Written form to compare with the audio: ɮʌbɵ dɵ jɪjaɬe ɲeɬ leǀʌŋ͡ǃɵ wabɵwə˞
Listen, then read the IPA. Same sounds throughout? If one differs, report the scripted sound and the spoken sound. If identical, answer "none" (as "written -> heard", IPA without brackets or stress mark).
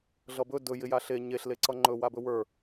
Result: none